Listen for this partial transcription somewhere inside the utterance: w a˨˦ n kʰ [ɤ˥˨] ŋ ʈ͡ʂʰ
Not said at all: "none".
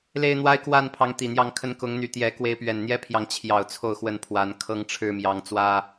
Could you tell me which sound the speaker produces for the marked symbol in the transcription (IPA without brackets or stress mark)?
ɤ˦